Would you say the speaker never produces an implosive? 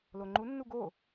yes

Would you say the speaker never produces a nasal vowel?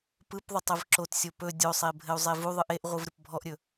yes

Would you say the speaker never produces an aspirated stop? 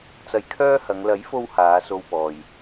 no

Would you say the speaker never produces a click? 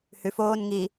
yes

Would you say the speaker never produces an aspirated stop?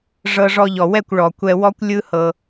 yes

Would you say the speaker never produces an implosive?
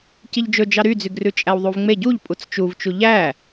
yes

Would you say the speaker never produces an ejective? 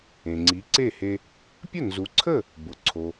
yes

